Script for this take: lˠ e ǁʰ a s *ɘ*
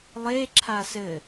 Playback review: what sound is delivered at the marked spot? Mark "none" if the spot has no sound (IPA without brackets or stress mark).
ɘ